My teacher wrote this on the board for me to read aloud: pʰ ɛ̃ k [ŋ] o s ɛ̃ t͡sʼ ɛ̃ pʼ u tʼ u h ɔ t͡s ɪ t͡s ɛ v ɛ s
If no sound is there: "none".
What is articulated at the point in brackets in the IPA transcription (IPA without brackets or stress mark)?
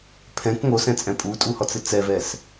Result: ŋ